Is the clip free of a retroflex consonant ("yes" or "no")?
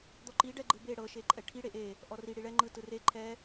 no